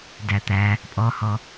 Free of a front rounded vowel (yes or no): yes